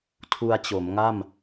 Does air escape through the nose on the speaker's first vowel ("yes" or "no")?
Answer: no